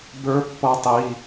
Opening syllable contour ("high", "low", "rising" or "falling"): rising